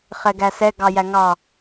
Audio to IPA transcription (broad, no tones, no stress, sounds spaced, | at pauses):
χ ɛ ɡ æ s ɛ ɡ ɑ j æ ŋ ɑ